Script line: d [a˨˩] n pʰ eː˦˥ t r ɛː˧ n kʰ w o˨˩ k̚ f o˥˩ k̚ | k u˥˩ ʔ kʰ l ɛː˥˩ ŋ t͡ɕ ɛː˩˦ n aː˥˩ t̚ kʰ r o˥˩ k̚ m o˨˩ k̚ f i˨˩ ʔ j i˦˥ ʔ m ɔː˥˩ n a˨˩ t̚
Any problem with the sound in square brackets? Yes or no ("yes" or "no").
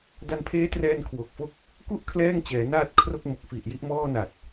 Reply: yes